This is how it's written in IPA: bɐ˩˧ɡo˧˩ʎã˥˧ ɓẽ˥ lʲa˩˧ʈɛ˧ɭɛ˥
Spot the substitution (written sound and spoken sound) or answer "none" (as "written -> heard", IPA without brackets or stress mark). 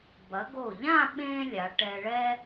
none